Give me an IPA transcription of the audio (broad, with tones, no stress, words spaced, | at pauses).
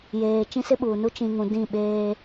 jeː˨ t͡ʃĩ˦sɪ˦ɓuː˨nu˦ t͡ʃĩ˨ŋũ˨ dĩ˦˨ ɓeː˦